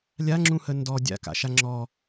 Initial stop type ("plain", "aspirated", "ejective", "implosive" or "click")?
click